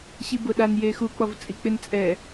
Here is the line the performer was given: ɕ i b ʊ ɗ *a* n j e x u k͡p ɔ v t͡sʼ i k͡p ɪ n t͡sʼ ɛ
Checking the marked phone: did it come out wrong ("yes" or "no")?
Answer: no